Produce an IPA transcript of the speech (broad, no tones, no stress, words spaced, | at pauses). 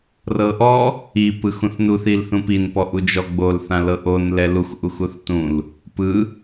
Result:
rɤʔɔ | i pɯxũθnuθ ilθũpin pɔʔud͡ʒɔ ɡ͡bol θãlɤʔon lɛlux ʔuxuθtũl | pɯ